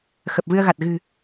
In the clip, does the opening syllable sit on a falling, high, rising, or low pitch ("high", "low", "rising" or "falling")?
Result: low